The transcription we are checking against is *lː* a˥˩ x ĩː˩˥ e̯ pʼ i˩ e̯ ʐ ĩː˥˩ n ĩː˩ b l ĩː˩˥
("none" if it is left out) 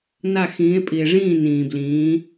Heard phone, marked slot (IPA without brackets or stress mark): n